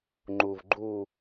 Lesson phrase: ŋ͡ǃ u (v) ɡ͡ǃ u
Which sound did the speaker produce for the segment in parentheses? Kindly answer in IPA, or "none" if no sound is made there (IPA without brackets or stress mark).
v